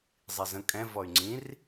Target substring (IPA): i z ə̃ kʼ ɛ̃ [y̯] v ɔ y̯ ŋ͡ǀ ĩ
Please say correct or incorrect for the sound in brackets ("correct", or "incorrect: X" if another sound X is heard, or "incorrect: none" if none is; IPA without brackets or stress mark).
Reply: incorrect: none